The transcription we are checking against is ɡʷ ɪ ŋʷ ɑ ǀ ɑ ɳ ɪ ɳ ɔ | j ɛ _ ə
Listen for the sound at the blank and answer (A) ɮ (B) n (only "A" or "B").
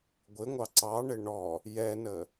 B